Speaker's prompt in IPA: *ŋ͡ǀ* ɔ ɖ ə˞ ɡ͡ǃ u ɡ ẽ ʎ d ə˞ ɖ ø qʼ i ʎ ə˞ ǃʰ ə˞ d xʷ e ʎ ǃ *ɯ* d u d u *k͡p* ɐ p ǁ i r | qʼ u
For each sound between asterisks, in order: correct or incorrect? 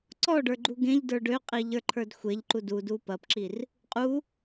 incorrect: ǀ, incorrect: u, incorrect: p

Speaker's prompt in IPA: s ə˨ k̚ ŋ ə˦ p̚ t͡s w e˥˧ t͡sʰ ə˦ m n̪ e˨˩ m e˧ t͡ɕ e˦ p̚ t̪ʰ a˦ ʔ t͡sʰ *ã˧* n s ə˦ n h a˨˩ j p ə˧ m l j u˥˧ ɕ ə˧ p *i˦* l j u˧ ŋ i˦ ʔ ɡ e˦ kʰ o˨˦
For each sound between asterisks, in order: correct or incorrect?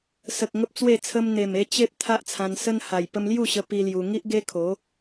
correct, correct

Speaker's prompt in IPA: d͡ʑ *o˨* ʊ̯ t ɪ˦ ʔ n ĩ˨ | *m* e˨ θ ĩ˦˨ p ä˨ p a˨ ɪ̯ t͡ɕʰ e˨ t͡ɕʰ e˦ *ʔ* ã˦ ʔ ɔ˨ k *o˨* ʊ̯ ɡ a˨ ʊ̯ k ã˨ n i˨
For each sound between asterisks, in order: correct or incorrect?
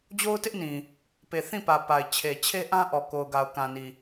incorrect: o˦, incorrect: p, correct, correct

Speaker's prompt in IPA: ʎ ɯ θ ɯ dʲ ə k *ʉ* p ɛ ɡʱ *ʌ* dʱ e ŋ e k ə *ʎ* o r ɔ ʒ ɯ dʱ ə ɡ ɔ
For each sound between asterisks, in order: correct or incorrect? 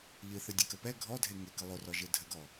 incorrect: ə, incorrect: ɔ, incorrect: lˠ

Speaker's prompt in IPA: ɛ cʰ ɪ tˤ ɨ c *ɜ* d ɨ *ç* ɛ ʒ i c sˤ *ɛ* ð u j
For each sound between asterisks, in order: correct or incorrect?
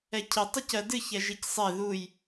correct, correct, incorrect: e

